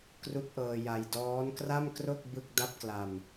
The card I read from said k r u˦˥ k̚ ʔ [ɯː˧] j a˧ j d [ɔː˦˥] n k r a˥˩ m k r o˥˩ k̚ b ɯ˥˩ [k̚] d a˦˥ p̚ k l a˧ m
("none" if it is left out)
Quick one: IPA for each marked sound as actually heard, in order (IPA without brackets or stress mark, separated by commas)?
ɤː˧, ɔː˦˥, k̚